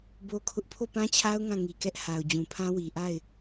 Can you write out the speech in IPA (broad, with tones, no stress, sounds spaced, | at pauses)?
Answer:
b o˦ kʰ ʊ˦ ʔ pʰ o˦˨ p ã˦ t͡ɕʰ a˦ ʊ̯ ŋ ã˦˨ ŋ i˨ k ɛ˦ ʔ h a˨ ʊ̯ d͡ʑ ũ˨ pʰ ã˦ w i˨ ʔ a˦˨ ɪ̯